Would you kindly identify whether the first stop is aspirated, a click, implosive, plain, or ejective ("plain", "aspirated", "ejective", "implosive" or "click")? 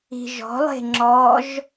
click